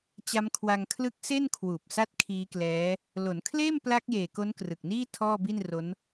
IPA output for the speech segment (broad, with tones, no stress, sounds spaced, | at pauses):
t͡ɕ a˦˥ m kʰ w a˧ ŋ kʰ l ɯ˦˥ k̚ s e˥˩ n kʰ w uː˨˩ p̚ s a˥˩ t̚ kʰ iː˦˥ k l ɛː˦˥ | l o˩˦ n kʰ l eː˥˩ m p l a˦˥ k̚ j eː˨˩ k o˦˥ n k r ɯ˨˩ k̚ n iː˥˩ tʰ ɔː˥˩ b i˥˩ n r o˦˥ n